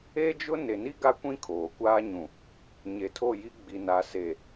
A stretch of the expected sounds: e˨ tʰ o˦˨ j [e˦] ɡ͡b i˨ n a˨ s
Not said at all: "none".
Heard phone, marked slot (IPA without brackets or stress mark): i˦